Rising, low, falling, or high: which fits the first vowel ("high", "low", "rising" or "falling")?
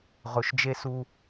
low